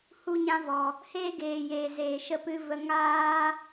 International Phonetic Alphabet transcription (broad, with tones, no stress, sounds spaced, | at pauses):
h u˧ ɲ ã˧ v ɔ˨ | h eː˦ ɡ eː˨ j eː˨ z eː˨ ʃ ə˧ p ɨ˧ v ə˧ ŋ aː˦